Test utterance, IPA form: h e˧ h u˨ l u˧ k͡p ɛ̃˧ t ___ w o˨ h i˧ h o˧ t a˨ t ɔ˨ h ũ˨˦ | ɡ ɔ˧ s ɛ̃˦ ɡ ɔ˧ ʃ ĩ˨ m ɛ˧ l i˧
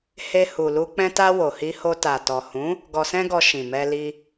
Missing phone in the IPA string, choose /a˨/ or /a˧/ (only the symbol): a˧